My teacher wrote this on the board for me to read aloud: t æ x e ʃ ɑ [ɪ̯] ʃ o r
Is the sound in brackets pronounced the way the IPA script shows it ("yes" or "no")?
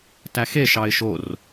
yes